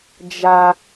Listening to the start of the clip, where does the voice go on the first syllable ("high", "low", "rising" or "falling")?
high